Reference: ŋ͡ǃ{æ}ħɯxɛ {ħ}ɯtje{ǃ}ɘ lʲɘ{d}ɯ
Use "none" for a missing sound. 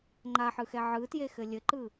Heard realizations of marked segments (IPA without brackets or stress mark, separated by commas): a, ʕ, x, ǃ